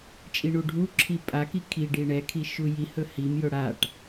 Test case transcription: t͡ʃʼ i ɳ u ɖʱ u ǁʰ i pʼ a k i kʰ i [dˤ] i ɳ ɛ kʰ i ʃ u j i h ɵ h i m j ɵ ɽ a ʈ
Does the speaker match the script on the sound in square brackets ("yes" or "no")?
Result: no